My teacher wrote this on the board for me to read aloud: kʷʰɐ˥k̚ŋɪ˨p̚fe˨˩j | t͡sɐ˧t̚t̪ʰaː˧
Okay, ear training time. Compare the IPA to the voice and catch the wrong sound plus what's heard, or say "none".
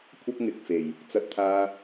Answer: p̚ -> k̚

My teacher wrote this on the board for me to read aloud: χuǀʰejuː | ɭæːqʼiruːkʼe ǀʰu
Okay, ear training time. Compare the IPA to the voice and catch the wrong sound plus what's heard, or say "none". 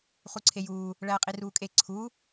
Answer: none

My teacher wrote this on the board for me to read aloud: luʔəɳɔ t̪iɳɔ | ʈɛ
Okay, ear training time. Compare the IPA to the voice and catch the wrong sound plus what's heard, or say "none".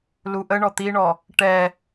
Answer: none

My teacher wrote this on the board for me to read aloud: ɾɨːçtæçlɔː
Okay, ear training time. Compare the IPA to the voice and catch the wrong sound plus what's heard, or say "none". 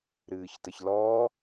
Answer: æ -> ə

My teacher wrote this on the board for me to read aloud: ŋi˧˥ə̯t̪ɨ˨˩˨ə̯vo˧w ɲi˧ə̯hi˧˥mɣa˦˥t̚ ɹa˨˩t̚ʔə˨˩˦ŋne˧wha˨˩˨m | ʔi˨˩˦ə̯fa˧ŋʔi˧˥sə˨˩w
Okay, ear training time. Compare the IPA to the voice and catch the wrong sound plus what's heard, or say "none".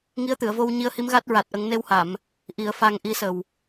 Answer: none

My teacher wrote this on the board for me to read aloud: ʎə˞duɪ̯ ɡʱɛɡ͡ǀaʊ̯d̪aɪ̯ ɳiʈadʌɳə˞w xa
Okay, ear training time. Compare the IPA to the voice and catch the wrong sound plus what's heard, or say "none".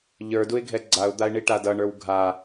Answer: x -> ɡʱ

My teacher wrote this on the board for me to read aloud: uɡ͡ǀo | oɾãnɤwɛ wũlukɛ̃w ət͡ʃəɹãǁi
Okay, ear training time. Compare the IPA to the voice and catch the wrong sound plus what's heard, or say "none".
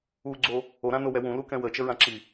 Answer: ɤ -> o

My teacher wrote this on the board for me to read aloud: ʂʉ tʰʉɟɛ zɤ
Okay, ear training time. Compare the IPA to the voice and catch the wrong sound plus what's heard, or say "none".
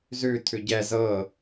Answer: ʂ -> z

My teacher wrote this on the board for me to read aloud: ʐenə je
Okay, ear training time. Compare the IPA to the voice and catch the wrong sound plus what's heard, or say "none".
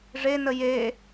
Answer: none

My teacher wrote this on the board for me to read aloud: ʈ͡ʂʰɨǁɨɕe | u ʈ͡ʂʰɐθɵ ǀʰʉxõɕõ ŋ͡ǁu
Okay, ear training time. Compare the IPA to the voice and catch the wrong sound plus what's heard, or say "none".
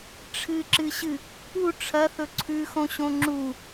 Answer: e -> ɨ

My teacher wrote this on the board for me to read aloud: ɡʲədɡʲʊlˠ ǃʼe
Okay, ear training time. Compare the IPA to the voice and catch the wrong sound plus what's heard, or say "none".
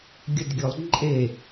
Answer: none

